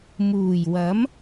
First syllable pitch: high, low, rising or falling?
low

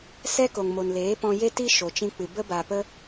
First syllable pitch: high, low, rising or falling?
high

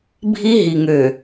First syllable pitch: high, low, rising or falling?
high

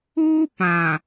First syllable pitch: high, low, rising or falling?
high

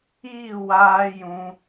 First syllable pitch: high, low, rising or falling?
falling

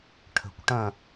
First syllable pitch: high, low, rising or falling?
low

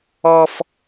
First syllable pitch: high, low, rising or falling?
high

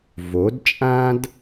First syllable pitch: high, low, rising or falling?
rising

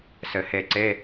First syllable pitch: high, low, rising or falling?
low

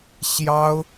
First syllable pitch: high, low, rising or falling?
high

